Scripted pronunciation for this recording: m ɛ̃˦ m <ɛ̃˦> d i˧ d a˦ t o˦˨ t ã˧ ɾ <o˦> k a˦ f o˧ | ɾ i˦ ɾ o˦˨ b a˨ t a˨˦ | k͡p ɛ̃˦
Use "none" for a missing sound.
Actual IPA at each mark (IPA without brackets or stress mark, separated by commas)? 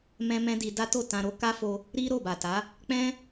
ɛ̃˦, o˦